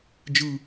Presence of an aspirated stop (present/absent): absent